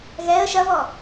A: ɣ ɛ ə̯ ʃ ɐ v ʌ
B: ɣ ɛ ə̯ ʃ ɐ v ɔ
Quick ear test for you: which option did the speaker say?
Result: B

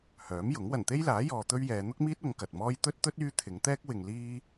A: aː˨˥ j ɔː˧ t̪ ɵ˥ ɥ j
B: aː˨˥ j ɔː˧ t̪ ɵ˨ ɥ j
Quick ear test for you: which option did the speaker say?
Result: A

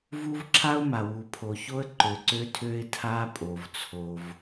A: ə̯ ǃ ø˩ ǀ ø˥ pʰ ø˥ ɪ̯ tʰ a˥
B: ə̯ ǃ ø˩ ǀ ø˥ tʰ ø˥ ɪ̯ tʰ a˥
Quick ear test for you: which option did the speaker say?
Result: B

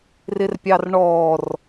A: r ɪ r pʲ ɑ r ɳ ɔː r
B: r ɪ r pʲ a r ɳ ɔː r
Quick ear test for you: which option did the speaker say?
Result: A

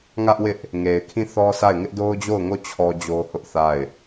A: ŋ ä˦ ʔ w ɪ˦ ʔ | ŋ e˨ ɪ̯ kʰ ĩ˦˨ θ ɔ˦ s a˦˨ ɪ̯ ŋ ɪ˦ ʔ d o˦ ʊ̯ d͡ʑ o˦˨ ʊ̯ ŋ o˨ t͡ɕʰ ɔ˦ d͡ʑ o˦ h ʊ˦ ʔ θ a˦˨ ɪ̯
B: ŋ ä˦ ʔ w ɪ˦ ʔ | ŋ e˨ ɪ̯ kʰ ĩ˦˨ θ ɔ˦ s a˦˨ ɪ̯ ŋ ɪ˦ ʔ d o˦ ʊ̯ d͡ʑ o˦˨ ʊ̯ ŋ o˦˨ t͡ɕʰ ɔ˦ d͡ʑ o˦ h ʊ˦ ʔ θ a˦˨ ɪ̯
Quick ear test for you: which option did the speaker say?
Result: B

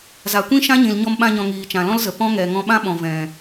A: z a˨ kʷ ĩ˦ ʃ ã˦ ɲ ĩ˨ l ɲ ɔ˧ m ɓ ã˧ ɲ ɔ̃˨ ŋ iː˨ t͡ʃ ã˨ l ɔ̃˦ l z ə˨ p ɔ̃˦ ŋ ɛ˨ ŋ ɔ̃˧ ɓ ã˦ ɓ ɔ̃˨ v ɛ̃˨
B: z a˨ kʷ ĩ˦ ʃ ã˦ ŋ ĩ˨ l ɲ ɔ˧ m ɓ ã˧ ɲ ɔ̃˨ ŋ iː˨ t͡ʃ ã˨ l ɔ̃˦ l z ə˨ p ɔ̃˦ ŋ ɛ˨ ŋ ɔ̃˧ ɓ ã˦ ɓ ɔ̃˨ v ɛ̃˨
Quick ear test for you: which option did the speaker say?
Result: A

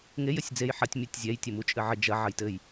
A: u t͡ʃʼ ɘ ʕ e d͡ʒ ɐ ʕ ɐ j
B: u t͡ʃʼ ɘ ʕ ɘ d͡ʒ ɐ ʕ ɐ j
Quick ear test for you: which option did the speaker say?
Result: B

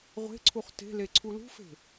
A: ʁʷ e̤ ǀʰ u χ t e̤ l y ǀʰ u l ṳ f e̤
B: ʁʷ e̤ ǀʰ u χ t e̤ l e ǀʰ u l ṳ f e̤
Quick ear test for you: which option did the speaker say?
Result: B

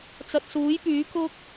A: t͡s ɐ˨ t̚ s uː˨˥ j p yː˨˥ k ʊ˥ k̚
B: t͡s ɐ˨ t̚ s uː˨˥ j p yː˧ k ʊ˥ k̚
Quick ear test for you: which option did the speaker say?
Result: A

